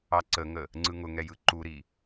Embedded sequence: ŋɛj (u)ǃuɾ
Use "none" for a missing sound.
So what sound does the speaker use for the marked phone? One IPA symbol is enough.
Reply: ɯ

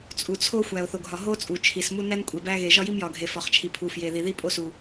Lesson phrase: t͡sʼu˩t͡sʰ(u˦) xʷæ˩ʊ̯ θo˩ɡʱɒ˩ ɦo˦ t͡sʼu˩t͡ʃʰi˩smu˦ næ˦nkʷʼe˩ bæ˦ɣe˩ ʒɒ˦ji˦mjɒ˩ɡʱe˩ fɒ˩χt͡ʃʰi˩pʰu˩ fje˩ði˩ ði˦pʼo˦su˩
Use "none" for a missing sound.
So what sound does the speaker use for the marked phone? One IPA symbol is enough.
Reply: o˦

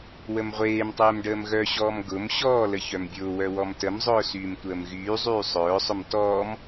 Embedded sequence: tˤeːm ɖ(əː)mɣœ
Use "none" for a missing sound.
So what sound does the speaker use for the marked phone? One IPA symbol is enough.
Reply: əː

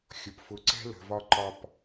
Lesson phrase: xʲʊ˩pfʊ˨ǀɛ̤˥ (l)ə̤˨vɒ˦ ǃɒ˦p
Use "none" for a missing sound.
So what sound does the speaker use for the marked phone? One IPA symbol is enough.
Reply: l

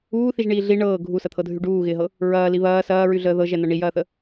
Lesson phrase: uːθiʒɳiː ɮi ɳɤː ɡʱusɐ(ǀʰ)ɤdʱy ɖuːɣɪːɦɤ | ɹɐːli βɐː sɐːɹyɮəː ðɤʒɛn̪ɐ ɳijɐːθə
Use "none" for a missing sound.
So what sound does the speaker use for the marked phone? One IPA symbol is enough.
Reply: t̪ʰ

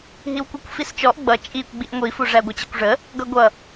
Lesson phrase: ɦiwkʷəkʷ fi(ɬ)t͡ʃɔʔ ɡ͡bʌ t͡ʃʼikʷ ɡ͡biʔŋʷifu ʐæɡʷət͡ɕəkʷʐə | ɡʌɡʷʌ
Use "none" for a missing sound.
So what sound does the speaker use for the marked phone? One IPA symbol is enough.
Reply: s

